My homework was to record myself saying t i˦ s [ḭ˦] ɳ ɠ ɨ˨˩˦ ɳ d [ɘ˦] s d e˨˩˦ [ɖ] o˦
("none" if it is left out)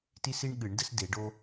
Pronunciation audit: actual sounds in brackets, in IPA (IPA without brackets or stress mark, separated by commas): i˦, ɘ˦, ɖ